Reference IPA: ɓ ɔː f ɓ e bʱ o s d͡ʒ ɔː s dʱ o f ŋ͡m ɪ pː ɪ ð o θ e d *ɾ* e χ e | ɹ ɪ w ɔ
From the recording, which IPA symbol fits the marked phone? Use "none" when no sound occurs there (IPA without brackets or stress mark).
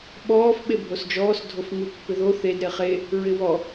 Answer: ɾ